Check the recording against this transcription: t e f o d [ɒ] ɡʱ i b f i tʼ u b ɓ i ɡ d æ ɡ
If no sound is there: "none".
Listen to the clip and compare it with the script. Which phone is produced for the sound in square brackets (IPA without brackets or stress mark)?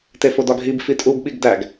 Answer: ɒ